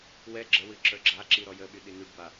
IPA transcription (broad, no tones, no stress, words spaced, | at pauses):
wɛ ɡ͡ǁəwɨ ǁə˞ɡ͡ǁaǁi ɾɔjəɓy ɗinyɖba